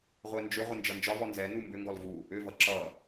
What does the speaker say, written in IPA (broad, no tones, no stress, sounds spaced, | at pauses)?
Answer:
ʁʷ ɛ n d͡ʒ ʏ ʁʷ ə n d͡ʒ ʌ n d͡ʒ ɒ v ɔ n z ɛ n u m b ʏ ŋ ɡ ɔ l v u | ʏ v ʌ ǁ ʌ